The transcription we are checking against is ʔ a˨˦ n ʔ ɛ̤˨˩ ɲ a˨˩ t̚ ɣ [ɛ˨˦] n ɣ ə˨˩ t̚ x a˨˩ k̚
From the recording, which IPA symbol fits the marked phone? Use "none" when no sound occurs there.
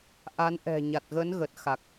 ə˨˦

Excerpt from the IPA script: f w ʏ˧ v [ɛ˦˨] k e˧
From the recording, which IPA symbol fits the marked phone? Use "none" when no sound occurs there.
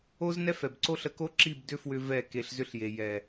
ɛ˦˨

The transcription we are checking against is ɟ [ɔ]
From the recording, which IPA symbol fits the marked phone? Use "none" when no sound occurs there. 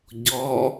ɔ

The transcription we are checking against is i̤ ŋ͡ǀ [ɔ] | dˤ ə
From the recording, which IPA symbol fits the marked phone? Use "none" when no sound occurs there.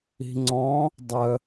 ɔ̃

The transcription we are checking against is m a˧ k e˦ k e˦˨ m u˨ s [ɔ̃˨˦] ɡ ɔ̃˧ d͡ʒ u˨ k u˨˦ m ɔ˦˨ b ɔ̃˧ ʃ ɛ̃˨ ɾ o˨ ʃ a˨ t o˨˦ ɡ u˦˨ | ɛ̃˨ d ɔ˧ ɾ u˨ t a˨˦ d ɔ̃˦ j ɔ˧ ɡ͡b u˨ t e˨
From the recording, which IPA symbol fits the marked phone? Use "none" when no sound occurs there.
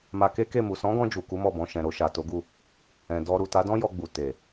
ɔ̃˨˦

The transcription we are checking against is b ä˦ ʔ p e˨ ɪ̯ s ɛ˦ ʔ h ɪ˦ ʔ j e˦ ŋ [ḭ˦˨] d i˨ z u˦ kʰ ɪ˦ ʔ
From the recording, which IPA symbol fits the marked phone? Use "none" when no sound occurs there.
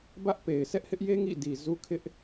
ḭ˦˨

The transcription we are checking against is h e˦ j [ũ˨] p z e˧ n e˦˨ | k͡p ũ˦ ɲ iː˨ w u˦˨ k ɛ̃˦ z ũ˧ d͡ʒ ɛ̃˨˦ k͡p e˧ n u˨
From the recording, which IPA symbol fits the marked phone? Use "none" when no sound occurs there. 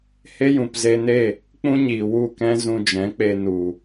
ũ˨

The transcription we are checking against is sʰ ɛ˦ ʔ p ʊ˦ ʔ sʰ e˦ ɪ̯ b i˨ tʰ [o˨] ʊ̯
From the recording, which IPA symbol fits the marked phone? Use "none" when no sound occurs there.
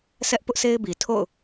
o̰˦˨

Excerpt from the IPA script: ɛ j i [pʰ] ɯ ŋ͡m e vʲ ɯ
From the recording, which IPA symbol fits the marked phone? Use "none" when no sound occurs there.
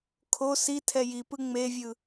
p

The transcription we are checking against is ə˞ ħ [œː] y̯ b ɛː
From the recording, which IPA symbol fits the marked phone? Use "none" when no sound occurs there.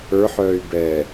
œː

